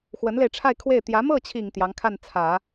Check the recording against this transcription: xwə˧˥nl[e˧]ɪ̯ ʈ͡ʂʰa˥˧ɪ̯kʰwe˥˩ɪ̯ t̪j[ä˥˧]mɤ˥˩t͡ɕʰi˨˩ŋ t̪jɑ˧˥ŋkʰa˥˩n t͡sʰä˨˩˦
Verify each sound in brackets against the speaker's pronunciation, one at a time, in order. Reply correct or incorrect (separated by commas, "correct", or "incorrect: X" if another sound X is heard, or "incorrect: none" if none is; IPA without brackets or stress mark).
correct, incorrect: ä˧˥